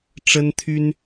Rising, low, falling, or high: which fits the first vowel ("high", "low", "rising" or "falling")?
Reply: high